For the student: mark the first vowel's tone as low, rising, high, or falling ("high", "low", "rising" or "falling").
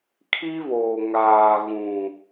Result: high